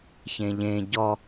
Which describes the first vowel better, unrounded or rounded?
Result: unrounded